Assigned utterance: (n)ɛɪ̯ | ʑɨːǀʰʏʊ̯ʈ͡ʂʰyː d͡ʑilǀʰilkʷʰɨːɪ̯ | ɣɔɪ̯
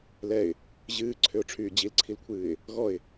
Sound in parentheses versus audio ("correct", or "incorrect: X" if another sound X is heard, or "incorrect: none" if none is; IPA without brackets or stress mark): incorrect: l